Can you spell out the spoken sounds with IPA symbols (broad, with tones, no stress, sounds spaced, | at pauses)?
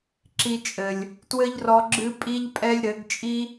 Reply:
ǁ i˧ t͡ʃʼ ɘ˨ lʲ | t w ɘ˦ ʎ r ɔ˧ ɡ͡ǁ ɨ˦ pʼ i˦ ʎ pʼ ɛ˦ lʲ ɾ ɘ˨˦ ɡ t͡ʃʼ i˦